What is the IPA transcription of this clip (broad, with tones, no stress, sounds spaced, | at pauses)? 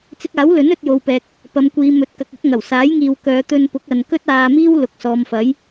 t͡s ɪ˧ k̚ aː˨˥ w l ɵ˨˥ n ɵ˨˥ t̚ j o˨ w p ɛː˨ k̚ | p ɐ˨˧ m kʷ iː˨˧ m ɵ˨˥ t̚ k ɐ˨ k̚ ɵ˨˥ t̚ ŋ ɐ˨˩ w s aː˨˥ j ŋ iː˨ w k œː˨˧ t̪ ɵ˧ n p ʊ˨˥ k̚ ɐ˨ n k ɵ˥ t̚ aː˧ m iː˥ w l ʊ˨˥ k̚ s ɔː˨˧ m f ɐ˨˥ j